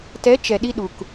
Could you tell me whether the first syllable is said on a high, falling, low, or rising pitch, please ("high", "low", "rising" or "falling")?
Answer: rising